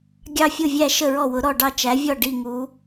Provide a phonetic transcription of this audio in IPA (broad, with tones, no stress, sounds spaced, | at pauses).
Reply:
ɡʲ ɑ˥˧ fʲ ʊ˥˧ vʲ æ˥˧ ʃ ə˥˧ ɹ ɔ˥˧ w ʊ˧˥ ɾ ɔ˥˧ ɖ ɑ˥˧ t͡ʃ æ˧˥ vʲ ɔ˥˧ ɖ i˥˧ ŋ u˧˥